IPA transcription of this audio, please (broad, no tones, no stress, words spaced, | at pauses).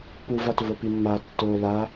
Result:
puvatvopi mːa tːo la